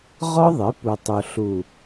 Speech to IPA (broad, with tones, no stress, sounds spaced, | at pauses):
ʁ ɔ˦ ðˤ ɪː˨˦ p u˨ tˤ u˨ ɬ u˨